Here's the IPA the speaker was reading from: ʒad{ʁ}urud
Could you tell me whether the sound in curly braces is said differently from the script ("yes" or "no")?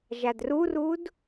yes